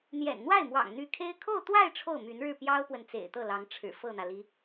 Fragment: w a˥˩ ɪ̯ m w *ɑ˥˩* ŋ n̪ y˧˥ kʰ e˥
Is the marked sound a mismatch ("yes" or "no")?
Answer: yes